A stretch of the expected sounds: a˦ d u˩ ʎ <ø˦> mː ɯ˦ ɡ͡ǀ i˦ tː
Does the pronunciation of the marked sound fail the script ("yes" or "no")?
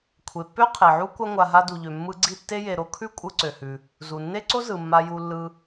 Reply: yes